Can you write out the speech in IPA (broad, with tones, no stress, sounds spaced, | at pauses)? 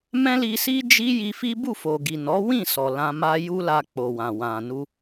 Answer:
m ɛ̃˦ l i˧ s i˦ d͡ʒ i˦ j i˧ f i˦ b u˦˨ f o˨ ɡ i˨ n ɔ˨˦ w ĩ˦˨ s ɔ˨ l ã˧ m a˦ j u˦ l a˧ k͡p o˨ w ã˨ w ã˨ n u˧